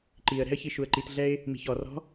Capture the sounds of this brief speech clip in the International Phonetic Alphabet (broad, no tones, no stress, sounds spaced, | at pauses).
ǃ i ə̯ ɾ ɛ̤ ə̯ ç i ʃ u ə̯ ǃ i t ɮ ɛ ɪ̯ | m i̤ ç ɔ r ɔ̤